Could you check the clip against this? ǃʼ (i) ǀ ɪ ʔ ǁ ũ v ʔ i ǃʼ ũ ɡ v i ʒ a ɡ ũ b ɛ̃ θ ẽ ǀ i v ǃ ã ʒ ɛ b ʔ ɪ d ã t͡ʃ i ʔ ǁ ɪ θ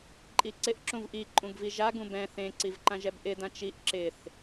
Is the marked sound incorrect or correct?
correct